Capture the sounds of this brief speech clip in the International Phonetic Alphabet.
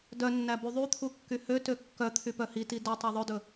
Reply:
d œ nː æ b y ðˤ y t̪ʰ u kː y h ø t ø kː œ t̪ʰ y p œ h i t i d ɵ tˤ ɵ ðˤ ɵ d ɵ

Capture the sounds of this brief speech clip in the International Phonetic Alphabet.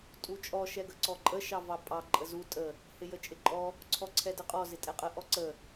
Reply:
tʼ u t͡ʃʼ ɔ ʃ ɛ ɡ ə ǀ ɔ ǃʼ ə ʃ ɑ v ɑ pʼ ɑ ǃʼ ə z u tʼ ə | h ɪ j ə t͡ʃʼ ɪ ǃʼ ɔ | ǀʰ ɔ ǀʰ ɛ d ə qʼ ɔ z ɪ tʼ ɛ qʼ ə ʔ ɔ ǀ ə

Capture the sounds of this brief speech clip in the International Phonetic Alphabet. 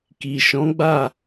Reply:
k i˨ ʃ ɔ̃˨˦ ɡ͡b a˦˨

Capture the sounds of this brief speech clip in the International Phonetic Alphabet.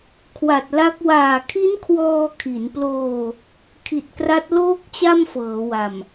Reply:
kʰ w a˨˩ t̚ l a˦˥ k̚ w aː˨˩ kʰ i˦˥ n kʰ w ɔː˧ kʰ i˩˦ n p l oː˧ | kʰ i˨˩ t̚ k r a˦˥ t̚ l oː˥˩ k̚ t͡ɕ a˥˩ m f ɤː˩˦ w a˨˩ m

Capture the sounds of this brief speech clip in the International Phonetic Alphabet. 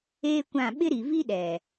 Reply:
eː˦ kʷ ã˦˨ ɓ ɪ˦ ɾ i˨ v i˦ ɗ ɛ˨

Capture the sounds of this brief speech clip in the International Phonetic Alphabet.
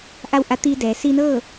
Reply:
ʔ a˥˨ w ʔ a˧˥ t̪ iː˧ d ɛː˩˧ s iː˧ n ɤː˥˨

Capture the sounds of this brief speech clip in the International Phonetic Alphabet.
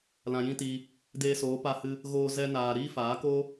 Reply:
l ã˧ j ĩ˦ t i˧ | d eː˧ s oː˨˦ p a˧ h ɨ˧ | ɣ oː˧ z ɛ˧ n aː˨ ɾ iː˦ f aː˨˦ k o˦

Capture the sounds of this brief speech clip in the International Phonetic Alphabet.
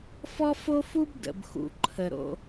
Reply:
f ɔ˥ f o˥ f u˥ b d ə̰˩ b x ṵ˩ ǃʰ ə˩ ɾ o̰˩

